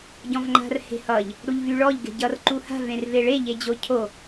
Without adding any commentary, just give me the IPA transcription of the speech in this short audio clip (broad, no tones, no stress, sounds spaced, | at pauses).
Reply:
ɟ ɔ̃ v ŋ͡ǃ a̤ r h e̤ h ʌ ʎ | ɽ u ʎ v y ɭ ɔ ʎ ɡ e̤ ɟ ʌ r ǃ u h a̤ v ẽ r v e ɭ e ʎ e d͡ʑ o cʰ o